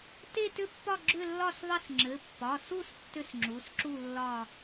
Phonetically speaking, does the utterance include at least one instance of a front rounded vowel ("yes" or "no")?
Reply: yes